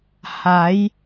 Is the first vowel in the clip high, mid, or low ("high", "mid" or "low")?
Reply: low